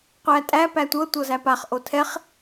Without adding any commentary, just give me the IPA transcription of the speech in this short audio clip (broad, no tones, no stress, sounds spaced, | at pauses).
qʷ æ tʼ æ p æ tʷ ɤ tʷ ɤ z æ p a χ ʔ o tʰ ɛ χ